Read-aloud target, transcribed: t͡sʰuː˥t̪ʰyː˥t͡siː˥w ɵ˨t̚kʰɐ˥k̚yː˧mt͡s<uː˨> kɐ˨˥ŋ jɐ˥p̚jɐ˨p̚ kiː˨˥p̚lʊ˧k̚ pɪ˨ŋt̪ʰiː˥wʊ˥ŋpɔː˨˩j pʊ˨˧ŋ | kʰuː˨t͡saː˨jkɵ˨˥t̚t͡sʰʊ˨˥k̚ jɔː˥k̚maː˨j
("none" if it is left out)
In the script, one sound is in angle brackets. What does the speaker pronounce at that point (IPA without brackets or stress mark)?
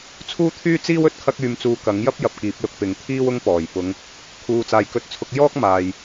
uː˧